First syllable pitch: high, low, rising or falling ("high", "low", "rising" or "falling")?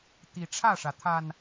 rising